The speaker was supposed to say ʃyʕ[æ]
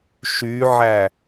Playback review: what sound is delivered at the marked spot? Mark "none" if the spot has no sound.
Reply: æ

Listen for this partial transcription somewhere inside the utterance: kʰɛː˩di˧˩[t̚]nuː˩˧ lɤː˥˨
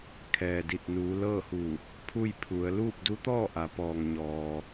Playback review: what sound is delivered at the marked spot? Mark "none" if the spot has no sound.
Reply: t̚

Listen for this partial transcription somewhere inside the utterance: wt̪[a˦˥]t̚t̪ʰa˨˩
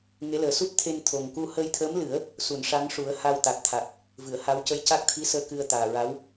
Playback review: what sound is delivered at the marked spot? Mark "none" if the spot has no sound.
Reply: a˨˩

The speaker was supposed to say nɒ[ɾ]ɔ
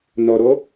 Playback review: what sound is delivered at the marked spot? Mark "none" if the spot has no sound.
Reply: ɾ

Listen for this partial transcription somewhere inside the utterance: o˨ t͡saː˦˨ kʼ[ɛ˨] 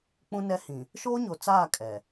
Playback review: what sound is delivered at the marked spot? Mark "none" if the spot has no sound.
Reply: ɛ˨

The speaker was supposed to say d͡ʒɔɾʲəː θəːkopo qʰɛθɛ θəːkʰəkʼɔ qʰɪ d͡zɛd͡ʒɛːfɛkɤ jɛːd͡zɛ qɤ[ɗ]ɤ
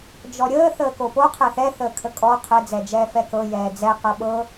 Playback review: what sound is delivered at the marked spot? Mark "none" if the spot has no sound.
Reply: ɓ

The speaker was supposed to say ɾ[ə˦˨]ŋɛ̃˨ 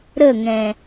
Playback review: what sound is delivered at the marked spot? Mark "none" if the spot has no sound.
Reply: ə˦˨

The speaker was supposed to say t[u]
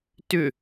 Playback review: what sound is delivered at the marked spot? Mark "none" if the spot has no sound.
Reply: ʏ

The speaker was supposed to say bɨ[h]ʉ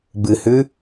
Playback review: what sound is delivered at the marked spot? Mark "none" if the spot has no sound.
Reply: h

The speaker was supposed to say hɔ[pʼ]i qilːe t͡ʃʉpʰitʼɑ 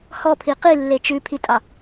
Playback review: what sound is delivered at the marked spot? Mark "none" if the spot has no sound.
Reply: pʰ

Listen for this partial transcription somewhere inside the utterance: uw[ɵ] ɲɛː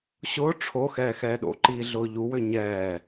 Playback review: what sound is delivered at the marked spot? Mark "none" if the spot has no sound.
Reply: ø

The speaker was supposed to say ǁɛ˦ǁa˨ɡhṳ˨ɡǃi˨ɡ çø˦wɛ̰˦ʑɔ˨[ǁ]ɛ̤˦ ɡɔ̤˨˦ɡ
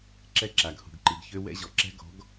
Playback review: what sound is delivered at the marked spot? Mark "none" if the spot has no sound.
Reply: ǁ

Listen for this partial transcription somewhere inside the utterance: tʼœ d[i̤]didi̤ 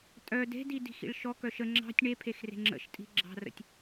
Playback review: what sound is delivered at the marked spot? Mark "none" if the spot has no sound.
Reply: e̤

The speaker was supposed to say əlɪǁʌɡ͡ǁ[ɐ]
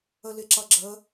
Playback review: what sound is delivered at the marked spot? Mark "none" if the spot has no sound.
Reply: ə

